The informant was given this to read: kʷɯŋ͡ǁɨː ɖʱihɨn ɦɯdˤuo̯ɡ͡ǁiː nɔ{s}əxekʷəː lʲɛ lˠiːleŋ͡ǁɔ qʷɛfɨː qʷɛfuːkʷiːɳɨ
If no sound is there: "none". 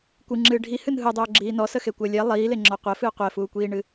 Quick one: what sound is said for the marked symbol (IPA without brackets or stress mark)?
s